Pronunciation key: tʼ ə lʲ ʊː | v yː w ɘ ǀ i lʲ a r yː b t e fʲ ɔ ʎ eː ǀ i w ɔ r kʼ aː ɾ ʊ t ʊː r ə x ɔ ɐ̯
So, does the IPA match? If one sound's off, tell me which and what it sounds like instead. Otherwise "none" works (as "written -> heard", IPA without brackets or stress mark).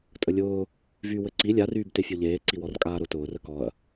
x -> k